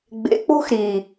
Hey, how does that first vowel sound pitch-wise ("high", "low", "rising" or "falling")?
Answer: low